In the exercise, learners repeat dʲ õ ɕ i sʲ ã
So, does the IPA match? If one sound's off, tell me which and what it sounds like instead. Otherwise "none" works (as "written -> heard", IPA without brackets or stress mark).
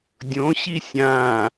none